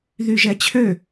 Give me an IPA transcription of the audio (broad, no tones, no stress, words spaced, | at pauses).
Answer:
ðyʒɛt͡ɕʰø